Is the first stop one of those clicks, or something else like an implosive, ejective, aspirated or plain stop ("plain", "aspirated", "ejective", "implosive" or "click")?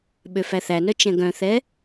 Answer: implosive